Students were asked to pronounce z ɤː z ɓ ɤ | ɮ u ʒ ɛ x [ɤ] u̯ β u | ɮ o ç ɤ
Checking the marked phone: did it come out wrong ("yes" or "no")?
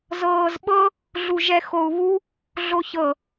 yes